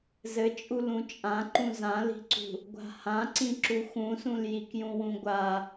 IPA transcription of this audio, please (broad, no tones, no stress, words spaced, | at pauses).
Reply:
zɘt͡ʃʼu lũt͡ʃʼãǃũ zãli̤ǀṳ | ɡʷa̤hãǀĩǁu xũsũljik jũwũɡʷa